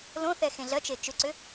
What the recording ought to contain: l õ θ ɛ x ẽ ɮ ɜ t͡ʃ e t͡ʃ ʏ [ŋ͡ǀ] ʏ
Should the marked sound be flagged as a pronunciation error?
yes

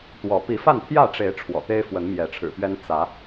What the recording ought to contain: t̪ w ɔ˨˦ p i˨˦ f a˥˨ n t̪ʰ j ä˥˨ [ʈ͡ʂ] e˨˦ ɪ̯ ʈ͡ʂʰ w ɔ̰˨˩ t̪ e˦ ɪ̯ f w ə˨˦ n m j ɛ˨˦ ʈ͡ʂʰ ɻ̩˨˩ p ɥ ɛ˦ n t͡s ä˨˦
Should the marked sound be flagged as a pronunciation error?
no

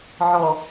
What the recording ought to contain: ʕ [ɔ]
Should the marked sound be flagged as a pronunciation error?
no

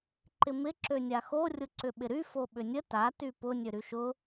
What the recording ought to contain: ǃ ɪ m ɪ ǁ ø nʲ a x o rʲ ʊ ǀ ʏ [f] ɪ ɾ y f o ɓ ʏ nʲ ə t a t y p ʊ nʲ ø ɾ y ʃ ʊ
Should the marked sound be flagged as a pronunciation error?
yes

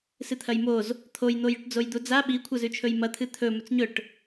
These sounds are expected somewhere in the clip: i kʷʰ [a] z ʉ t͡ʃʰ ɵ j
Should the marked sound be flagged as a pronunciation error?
yes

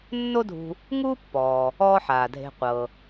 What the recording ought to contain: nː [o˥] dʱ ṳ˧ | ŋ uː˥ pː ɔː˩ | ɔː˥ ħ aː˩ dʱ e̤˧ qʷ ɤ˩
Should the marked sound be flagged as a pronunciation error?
no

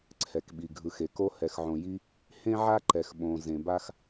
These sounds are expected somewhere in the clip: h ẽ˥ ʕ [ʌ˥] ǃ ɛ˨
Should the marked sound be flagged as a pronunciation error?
yes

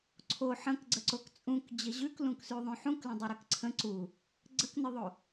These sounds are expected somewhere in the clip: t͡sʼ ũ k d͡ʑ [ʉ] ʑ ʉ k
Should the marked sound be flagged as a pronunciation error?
yes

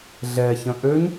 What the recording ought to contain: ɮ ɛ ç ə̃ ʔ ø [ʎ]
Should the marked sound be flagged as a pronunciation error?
yes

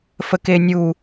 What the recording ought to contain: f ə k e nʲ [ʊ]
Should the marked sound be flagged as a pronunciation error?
yes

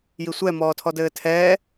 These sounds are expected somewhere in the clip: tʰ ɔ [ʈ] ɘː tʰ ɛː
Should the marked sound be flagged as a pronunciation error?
yes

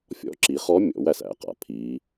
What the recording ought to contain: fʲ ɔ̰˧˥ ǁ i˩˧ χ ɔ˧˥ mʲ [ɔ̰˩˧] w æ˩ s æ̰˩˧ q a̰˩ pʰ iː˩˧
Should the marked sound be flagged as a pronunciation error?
no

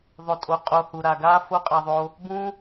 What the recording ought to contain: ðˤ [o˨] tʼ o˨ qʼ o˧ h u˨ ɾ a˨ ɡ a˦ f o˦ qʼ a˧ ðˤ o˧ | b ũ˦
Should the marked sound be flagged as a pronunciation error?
no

